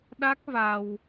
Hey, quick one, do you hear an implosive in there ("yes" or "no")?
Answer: yes